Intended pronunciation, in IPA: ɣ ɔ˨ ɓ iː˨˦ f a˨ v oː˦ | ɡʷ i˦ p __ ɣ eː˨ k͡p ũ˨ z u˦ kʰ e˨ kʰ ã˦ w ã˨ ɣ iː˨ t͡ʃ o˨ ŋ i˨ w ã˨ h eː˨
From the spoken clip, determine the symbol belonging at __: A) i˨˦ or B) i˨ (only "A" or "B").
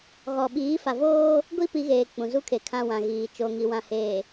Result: A